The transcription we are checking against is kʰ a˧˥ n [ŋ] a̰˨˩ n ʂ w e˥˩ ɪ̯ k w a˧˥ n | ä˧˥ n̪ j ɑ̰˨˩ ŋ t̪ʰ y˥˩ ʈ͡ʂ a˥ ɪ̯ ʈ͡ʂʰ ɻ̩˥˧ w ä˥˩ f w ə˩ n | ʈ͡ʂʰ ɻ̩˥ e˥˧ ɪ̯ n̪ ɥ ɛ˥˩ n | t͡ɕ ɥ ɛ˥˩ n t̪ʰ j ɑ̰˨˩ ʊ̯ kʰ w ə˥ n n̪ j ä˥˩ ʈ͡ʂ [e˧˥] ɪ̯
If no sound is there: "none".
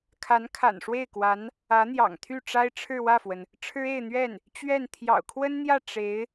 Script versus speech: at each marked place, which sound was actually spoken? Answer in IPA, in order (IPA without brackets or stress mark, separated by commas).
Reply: kʰ, e˧˥